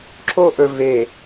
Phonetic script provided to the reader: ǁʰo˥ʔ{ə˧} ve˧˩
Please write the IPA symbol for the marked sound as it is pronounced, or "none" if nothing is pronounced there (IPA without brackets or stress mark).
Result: ɵ˧